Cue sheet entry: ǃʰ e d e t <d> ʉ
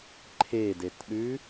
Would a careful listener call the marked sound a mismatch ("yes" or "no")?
yes